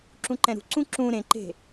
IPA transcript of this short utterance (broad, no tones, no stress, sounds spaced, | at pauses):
ǁ ũ ǃ ɛ̃ ɾ ṳ ǀ ũ ǁ ũ ɾ ẽ ǃ e̤